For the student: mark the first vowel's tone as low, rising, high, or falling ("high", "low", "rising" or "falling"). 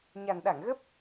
low